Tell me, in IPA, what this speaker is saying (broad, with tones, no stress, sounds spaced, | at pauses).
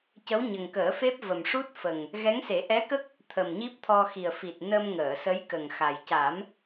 c ə˧˥ w ɲ ə˨˩ ŋ k əː˨˩˦ f e˦˥ p̚ v ə˨˩ m ʂ u˦˥ t̚ f ə˨˩ ŋ | ɣ ɛ˧˥ ŋ s e˨˩˦ ʔ ɛ˧˥ k ə˦˥ k̚ | t̪ʰ ə˨˩ m ɲ i˦˥ p̚ t̪ʰ ɔ˧ x i˨˩ ə̯ f i˨˩ t̚ n ə˧ m ŋ əː˨˩˨ s ə˧˥ j k ə˨˩ ŋ x a˨˩ j c a˨˩˦ m